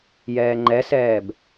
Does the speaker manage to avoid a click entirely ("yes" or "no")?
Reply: no